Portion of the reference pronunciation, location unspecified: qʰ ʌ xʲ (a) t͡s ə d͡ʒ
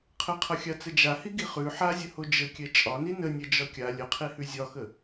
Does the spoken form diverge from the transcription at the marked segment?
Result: no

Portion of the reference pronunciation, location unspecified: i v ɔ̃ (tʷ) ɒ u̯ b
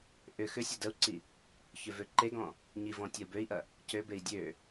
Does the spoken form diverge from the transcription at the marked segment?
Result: yes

